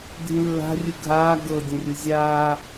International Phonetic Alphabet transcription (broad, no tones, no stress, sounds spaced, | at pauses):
dʱ ĩ lː a̤ rʲ ɯ ɡʱ aː ɡ ɤ dʲ ɛ̃ rʲ ɯ zʲ aː